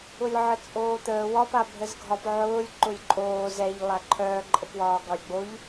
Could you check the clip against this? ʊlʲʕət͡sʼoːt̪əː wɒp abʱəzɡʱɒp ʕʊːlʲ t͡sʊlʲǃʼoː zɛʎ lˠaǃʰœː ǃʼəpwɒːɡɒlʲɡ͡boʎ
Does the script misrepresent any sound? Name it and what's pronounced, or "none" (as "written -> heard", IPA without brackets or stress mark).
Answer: t͡s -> ǃ